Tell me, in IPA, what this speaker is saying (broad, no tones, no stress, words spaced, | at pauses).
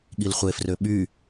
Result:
ɠilχʷefrø ɓy